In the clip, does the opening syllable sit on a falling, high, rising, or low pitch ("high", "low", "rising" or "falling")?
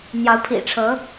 rising